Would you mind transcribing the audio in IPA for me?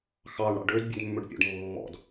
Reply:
x ɑ ɳ ɽ ɑ̰ ɖ ø d bʲ ɵ d mː ɵ ɖ pʲ ɔ̰ ɖ mː ɔ̰ d

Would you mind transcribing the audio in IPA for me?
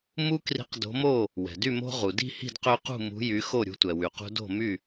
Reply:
m u˦ k r i̤˨˥ q d o̤˨˥ m o˥˨ | w ɛ̤˩ d y˥˨ m o̤˦ ʁ u˩ d i̤˥˨ h i̤˥˨ d q ø˦ q ṳ˥˨ m ṳ˨˥ j y˨˥ x o˥˨ ɾʲ ṳ˨˥ tʷ ɛ˩ w y˩ q ṳ˦ d o̤˥˨ m y˥˨

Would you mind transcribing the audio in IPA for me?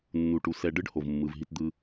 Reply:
nː u˨ ʈ u˨ s ɛ˨ ɖ ɯ˦ ɖ h o˨ v mː ɯ˨ v ɦ i˦ t d̪ ɯ˦

